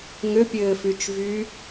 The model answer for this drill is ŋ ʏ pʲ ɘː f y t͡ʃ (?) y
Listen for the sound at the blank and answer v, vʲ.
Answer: v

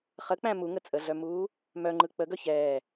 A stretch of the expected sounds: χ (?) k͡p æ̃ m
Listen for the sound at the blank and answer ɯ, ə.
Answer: ə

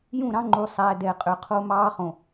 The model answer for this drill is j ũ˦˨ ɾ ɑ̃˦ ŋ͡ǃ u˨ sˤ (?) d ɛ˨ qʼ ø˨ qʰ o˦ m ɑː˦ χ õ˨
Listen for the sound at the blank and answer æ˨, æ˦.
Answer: æ˨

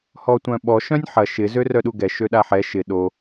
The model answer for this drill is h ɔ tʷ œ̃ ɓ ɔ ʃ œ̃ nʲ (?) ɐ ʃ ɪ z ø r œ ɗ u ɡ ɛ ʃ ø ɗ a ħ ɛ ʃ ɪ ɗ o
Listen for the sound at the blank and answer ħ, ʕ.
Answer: ħ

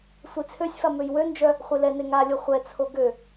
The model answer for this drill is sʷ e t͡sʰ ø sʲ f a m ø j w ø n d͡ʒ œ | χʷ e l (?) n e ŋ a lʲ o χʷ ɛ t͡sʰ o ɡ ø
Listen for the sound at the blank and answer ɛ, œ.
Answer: ɛ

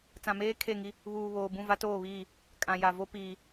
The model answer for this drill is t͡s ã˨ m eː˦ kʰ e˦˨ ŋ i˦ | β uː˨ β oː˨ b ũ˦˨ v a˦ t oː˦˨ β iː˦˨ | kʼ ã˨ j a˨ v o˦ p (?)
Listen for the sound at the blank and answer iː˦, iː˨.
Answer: iː˨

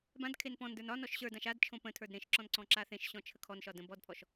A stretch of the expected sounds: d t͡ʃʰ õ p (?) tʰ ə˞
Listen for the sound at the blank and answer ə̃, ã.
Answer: ə̃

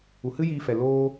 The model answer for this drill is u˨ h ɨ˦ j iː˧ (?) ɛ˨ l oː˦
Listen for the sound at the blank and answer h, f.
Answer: f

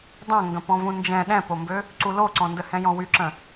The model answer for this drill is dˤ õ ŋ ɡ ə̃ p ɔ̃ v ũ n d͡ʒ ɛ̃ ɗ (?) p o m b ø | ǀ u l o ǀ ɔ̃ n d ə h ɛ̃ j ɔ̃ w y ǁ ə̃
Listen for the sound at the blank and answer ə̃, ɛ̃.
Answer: ɛ̃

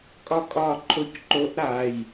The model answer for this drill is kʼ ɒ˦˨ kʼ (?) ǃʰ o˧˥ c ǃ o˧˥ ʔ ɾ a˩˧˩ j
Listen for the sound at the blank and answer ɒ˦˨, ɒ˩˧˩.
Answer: ɒ˦˨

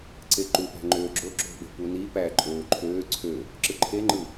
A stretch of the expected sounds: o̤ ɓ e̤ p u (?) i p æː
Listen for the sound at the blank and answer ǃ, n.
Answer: n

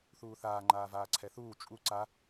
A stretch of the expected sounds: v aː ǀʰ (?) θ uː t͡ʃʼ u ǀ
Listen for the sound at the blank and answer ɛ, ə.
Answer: ɛ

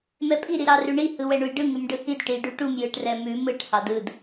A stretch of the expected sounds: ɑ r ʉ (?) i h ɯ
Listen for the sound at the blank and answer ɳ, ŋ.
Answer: ɳ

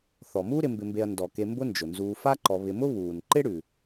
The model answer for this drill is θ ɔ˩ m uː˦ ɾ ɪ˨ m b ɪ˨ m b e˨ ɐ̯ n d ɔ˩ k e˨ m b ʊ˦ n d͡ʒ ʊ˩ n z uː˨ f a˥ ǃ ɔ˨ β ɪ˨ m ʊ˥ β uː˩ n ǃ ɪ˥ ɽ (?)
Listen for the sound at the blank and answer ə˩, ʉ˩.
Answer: ʉ˩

